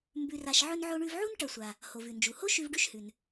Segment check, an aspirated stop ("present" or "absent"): absent